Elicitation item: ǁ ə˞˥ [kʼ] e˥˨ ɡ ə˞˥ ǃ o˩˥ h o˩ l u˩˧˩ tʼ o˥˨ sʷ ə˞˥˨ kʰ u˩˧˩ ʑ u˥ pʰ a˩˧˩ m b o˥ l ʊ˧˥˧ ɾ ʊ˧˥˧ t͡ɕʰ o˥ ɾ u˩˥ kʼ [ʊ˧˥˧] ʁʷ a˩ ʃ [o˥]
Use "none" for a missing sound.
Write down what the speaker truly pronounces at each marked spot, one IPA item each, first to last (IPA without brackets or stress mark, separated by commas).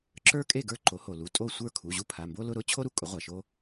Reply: kʼ, ʊ˩˥, o˥